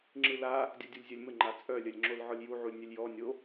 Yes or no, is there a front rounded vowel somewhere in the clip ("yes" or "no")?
yes